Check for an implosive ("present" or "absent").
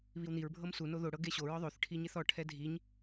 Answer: absent